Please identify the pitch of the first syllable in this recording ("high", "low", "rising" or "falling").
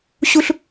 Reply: high